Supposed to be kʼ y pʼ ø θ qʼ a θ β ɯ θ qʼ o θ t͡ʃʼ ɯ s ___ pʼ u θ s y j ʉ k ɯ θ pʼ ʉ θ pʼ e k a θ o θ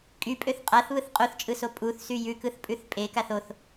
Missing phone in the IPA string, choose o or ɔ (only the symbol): o